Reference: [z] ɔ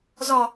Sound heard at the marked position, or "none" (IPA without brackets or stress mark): z